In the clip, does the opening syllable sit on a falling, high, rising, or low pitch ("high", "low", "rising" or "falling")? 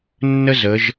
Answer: high